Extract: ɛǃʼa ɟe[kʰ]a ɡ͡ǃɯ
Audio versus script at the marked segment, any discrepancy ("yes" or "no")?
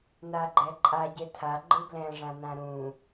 yes